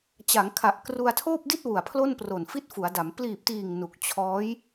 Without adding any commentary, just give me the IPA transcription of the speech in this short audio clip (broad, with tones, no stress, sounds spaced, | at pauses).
t͡ɕ a˩˦ ŋ kʰ a˨˩ ʔ k r u˧ a̯ tʰ oː˥˩ p̚ d i˥˩ t̚ w u˨˩ a̯ pʰ l o˥˩ n p r o˨˩ n f i˥˩ t̚ f u˩˦ a̯ d a˩˦ m p l iː˨˩ p̚ t iː˨˩ ŋ n u˨˩ k̚ t͡ɕʰ ɔː˦˥ j